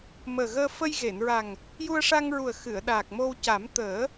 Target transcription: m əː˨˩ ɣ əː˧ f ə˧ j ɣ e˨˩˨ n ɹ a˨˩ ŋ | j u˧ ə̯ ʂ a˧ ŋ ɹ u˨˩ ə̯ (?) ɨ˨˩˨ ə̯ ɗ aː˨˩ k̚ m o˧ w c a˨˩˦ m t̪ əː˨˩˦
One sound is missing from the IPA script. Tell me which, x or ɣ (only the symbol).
x